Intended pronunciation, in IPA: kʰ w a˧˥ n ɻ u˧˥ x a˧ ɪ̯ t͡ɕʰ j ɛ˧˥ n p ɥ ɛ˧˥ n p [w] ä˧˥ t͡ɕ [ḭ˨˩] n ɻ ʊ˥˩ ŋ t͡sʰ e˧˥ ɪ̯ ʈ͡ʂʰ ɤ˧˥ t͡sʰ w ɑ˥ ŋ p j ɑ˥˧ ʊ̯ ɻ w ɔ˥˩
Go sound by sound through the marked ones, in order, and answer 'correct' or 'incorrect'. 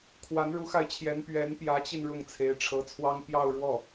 incorrect, incorrect

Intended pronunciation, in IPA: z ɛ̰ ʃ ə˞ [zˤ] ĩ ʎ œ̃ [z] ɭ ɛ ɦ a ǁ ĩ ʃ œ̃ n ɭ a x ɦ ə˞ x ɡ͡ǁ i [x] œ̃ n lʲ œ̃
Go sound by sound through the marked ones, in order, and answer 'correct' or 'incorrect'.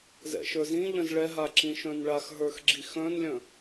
incorrect, correct, correct

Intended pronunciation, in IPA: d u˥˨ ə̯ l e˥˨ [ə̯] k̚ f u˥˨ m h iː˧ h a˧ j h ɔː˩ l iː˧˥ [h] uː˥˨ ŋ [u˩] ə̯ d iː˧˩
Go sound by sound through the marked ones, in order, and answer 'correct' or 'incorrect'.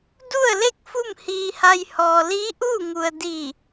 incorrect, incorrect, correct

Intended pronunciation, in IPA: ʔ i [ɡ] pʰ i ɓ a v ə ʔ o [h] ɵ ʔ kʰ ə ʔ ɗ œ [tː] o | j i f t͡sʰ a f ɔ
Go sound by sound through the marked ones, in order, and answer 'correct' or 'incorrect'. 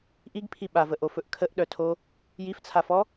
correct, incorrect, incorrect

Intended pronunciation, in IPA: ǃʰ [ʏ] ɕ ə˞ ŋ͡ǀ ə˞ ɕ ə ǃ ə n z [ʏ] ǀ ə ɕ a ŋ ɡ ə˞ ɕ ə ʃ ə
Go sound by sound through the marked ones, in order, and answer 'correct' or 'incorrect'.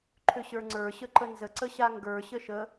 correct, incorrect

